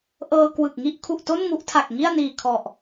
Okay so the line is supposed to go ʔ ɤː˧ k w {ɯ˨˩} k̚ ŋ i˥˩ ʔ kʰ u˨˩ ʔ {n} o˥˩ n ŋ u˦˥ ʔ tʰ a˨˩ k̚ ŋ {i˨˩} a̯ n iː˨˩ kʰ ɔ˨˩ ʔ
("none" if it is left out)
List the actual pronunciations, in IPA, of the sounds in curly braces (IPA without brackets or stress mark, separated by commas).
ɯ˨˩, t, i˥˩